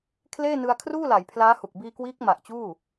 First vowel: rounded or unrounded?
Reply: unrounded